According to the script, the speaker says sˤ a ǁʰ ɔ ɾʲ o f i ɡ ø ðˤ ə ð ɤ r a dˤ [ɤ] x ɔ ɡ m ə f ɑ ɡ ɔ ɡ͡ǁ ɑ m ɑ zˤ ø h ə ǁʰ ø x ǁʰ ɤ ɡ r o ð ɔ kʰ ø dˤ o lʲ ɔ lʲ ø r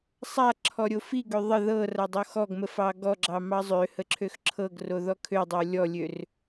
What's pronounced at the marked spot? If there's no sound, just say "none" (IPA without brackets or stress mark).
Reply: o